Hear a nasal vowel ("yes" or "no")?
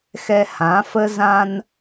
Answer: yes